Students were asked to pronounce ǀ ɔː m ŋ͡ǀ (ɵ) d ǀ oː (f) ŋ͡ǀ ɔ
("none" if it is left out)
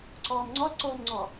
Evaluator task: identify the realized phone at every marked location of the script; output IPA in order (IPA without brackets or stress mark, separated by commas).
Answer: ɔ, m